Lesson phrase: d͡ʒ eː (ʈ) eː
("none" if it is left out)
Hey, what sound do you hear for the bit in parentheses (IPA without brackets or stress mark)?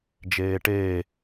ʈ